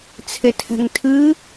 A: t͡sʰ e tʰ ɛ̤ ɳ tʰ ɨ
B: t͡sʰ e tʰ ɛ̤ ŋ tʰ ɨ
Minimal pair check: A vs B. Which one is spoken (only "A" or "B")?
B